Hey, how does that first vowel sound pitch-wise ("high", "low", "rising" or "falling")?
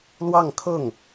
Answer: falling